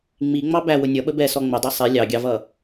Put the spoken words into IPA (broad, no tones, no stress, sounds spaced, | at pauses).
ŋ͡m i ŋ͡m ɑ b æ w ʊ nʲ ʌ ɓ ə b ɛ s ɔ ŋ͡m ʊ dˤ ɛ sˤ ɛ lʲ ɑ ɡʲ ɑ v ʌ